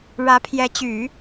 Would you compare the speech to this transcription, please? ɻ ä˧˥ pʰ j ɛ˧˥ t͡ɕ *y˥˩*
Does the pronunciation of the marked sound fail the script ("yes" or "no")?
yes